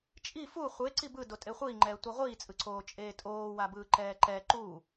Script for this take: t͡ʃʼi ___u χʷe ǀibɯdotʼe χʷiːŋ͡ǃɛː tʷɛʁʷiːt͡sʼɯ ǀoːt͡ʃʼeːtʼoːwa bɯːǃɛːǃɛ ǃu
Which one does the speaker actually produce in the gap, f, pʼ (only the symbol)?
f